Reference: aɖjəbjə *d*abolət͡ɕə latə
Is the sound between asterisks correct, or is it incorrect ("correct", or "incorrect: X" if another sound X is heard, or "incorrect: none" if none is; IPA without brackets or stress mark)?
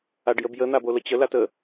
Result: incorrect: n̪